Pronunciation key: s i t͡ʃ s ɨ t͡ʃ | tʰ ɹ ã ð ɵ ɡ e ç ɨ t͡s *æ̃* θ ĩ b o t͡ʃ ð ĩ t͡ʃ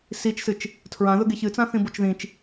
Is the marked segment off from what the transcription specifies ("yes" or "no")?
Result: yes